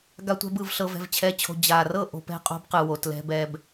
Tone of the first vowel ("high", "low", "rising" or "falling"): low